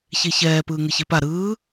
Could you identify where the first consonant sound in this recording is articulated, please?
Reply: palatal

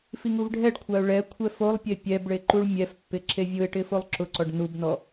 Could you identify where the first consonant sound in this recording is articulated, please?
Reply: labial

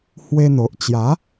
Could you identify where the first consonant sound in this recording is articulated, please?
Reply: glottal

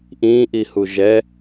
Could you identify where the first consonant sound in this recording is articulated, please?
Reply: glottal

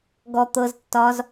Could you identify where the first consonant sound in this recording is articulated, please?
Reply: velar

